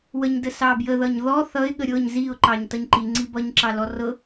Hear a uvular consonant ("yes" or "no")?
no